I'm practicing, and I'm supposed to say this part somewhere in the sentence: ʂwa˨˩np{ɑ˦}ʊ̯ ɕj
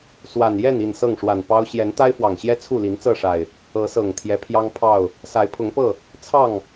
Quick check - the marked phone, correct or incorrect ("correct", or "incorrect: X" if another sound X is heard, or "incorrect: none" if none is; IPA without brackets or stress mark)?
correct